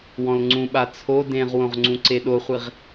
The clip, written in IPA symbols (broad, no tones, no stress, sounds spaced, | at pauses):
w ɔ̃ l ŋ͡ǀ ũ ɓ a t͡sʰ o d ẽ ʁ w õ ʁ ŋ͡ǀ ũ ǀ e ɗ o χʷ i ʁ